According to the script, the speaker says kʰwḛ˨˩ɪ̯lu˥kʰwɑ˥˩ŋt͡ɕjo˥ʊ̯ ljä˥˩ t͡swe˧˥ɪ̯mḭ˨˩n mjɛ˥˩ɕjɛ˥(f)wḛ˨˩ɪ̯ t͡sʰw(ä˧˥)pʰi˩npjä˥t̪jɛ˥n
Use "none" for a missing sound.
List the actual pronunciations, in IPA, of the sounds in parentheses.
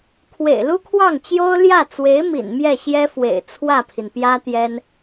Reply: f, ä˥˩

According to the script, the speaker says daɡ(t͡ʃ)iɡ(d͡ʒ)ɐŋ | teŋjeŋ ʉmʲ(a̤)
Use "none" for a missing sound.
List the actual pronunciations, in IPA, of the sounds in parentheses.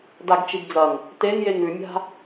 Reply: t͡ʃ, d͡z, a̤

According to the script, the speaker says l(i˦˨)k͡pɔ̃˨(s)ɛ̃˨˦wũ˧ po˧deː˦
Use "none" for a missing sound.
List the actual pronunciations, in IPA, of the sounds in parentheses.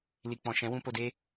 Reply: i˨, ʃ

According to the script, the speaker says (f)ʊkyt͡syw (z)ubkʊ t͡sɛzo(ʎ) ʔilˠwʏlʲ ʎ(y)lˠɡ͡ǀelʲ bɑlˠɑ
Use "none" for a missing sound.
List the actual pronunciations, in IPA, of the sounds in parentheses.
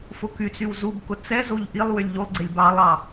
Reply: f, z, ʎ, u

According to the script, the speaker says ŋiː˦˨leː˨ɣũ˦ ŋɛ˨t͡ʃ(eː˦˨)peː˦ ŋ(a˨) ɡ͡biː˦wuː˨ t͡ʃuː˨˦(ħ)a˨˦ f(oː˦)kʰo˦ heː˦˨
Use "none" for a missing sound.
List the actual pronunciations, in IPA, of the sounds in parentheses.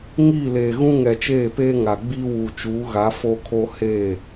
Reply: eː˦˨, a˨, ɣ, o˦

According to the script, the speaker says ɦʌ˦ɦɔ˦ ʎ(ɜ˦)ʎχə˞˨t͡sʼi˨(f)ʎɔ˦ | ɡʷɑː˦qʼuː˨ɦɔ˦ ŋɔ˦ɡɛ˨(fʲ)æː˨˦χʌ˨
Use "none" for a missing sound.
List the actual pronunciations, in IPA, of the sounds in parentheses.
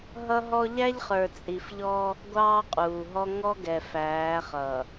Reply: æ˦, f, f

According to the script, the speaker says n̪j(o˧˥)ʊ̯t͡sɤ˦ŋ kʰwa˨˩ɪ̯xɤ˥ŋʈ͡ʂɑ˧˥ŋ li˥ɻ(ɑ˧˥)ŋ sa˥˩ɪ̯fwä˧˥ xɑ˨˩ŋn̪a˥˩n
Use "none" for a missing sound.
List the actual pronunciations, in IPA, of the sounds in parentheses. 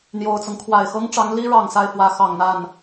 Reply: o˨˩, ɑ˨˩

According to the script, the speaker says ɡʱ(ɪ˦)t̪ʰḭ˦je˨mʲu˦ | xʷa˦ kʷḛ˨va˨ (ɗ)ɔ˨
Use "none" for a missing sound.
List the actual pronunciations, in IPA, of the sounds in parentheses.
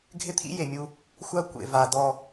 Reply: ɪ˦, d

